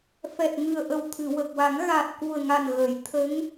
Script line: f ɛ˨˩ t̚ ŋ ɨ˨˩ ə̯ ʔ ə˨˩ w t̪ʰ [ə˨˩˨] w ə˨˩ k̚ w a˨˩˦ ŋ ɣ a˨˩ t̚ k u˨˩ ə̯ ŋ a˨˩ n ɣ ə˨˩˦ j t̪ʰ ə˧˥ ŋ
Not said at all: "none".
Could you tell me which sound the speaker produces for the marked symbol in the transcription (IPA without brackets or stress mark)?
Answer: ɨ˨˩˨